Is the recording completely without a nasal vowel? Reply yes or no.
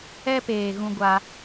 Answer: no